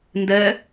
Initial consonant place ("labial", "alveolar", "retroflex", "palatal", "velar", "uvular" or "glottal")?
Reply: alveolar